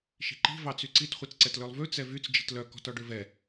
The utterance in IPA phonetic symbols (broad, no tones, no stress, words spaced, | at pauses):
ʃi̤ǃi̤ vɑt͡syǀit χʷit͡sǀɛtlølˠvʉ t͡sɛvyt͡s d͡ʒi̤tlœ kɔ̤tɔɖøvɛ